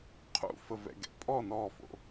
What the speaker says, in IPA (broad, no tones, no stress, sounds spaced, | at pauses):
qʰ ṵ f ə v ɛ̰ ɡ ɛ̰ pʼ ɔ n ɔ f o̰